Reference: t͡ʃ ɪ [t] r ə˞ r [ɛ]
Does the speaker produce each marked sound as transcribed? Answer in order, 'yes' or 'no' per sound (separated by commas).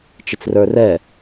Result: no, yes